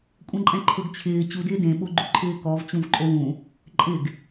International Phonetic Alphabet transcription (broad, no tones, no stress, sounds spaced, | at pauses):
kʷʼ ɛ̃ ǃʼ ɛ̃ ǃʰ ʊ ɡ t͡ɕʰ ɪː t͡ɕ u d ɪː d ẽ ɓ o ɡ͡ǃ u ǃʰ ɪː k ɔ v t͡ɕ ũ v ǃʼ o w ũ | ǃʼ ɪ ɡ